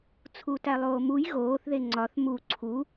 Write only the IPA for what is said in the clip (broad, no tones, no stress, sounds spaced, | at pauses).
t͡sʰ u t æ lˠ oː m u j ɣ oː θ ð e ŋ͡ǀ ɒ θ m u ǀʰ u